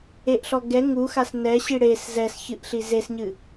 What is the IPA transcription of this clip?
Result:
e ʔ ɬ ɔ ɡ ɛ ŋ u x a s n ɛ ɕ i ɽ e s z ɛ s ç ɨ ʔ ɬ i z e s ɲ ɨ

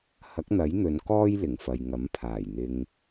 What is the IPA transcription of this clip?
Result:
h ɐ˨˥ k̚ n̪ ɐ˨˥ j n̪ ɵ˨˧ n k ɔː˥ j l ɪ˨˩ ŋ f ɐ˨ j ŋ ɐ˨˥ m pʰ aː˨˩ j n̪ ɪ˧ ŋ

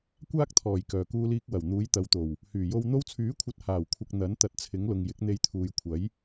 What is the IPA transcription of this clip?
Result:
kʷ aː˥ k̚ t̪ʰ ɔː˨˩ j k œː˨˩ k uː˧ l iː˧ k̚ w ɐ˨˩ w n̪ uː˨˥ j t̪ ɐ˨˧ w t̪ o˨˩ w | h yː˨˩ j o˧ w n̪ o˧ w t͡sʰ yː˨˥ kʷʰ ɐ˨˥ t̚ h aː˨˩ w kʷʰ ɐ˨ k̚ n̪ ɐ˨˥ n t̪ ɐ˨ t̚ t͡sʰ ɪ˨˥ ŋ l ʊ˨ ŋ j ɪ˨˥ k̚ n̪ e˧ j t̪ʰ uː˨ j kʷʰ ɐ˨˥ j

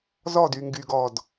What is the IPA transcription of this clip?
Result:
z ɔ d y ŋ ɡ y ɡ ɔ d

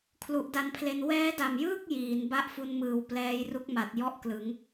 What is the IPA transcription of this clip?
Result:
kʰ l u˨˩ ʔ d a˧ n pʰ l e˧ n w ɛː˦˥ d a˨˩ m j ɯː˥˩ k̚ j iː˩˦ n b a˦˥ ʔ f u˧ n m ɯː˨˩ w p l ɛː˧ j r u˦˥ k̚ m a˨˩ t̚ j ɔ˥˩ ʔ k l ɯ˩˦ ŋ

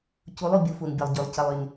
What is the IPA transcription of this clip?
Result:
c u˨˦ lˠ u˨ bʲ u˨˦ f u˨ n bʲ ə˨ lˠ ɟ y˨ lˠ c ə˨ lˠ y˨ n

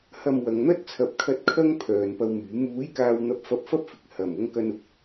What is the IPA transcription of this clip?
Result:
h ɐ˧ m w ɐ˨˧ ŋ n̪ ɐ˥ t̚ t͡sʰ ɐ˨˥ p̚ kʰ ɐ˧ t̚ kʰ ɐ˥ ŋ pʰ œː˨ n p ɐ˧ w m yː˨˥ m uː˨˥ j k aː˨ w n̪ ɐ˨˥ p̚ f ɐ˧ p̚ f ɐ˥ p̚ f ɪ˨ k̚ h ɐ˨˩ m ʊ˧ ŋ k ɐ˧ n ʊ˥ k̚

